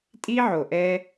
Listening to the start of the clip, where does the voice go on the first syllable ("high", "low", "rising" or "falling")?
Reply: high